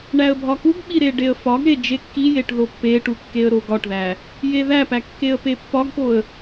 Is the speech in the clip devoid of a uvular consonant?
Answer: yes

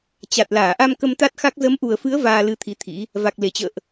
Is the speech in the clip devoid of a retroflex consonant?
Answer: yes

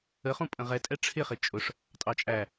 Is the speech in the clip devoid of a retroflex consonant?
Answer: no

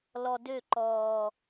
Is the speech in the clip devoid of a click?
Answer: no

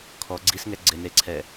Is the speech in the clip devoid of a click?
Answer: no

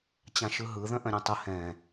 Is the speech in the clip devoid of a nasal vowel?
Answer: no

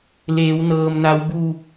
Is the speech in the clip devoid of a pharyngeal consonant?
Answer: yes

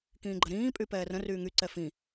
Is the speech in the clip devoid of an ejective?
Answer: no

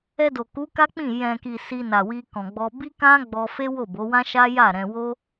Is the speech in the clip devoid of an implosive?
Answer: yes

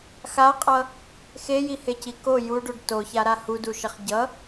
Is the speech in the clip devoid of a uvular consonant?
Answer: no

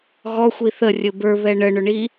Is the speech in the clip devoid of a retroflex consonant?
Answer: no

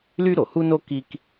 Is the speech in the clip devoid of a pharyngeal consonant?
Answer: yes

